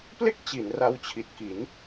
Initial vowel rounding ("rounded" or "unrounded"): unrounded